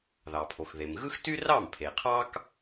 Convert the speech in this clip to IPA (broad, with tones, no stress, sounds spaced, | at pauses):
ð ɑ˩ pʰ o˩ x ð e˩ m ɣ ɯ˥ x t y˥ r ɑ˥˩ m pʰ e˩ qʰ ɑ˥ k